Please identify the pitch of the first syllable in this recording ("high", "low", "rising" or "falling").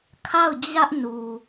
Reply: falling